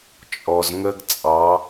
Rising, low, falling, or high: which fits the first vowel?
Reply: low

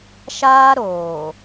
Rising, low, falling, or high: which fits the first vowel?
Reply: high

